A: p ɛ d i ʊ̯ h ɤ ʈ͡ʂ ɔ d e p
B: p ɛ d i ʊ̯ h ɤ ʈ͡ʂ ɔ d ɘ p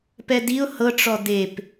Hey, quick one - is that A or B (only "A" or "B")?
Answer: A